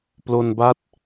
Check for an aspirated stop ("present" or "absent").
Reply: absent